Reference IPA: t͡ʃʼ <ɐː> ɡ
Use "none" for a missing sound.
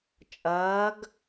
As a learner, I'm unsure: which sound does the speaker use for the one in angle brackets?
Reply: ɐː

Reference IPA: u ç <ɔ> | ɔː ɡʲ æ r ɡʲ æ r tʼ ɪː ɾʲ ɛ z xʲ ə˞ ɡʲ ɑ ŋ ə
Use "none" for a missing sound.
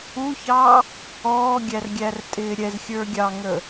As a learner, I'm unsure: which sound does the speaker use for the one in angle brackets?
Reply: ɑ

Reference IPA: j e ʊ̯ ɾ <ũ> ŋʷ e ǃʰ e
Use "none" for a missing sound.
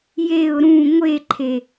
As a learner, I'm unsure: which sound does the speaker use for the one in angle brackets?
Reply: ũ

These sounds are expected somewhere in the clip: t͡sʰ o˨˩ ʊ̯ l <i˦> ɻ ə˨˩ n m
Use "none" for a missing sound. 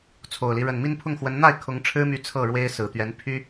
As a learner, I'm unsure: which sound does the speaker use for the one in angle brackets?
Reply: i˦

